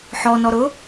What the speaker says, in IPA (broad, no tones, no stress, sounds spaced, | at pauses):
ħ ɔ n ɔ ɾ ʊ